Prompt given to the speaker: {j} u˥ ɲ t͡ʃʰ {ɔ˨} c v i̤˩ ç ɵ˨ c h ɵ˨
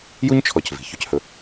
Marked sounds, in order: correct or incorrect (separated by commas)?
correct, correct